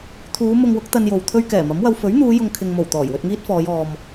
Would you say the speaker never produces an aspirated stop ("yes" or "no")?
no